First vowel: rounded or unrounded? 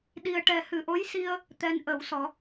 unrounded